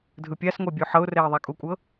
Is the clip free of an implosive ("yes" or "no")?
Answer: yes